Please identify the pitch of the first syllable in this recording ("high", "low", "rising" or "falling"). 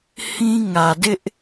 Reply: high